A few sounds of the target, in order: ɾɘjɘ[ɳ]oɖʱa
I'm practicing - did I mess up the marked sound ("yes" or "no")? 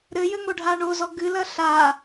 yes